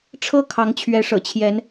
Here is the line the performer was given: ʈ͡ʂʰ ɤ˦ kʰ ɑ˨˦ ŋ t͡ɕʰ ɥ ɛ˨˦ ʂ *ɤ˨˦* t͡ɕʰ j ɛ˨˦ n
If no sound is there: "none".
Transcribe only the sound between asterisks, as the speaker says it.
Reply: ɤ̰˨˩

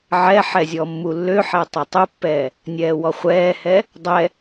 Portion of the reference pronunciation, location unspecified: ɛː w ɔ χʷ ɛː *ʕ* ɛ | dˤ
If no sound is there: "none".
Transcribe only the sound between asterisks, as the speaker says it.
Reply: h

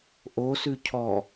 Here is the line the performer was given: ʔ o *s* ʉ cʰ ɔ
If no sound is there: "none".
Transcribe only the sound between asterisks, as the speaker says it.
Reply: s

